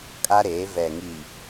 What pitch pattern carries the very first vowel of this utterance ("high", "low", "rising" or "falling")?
high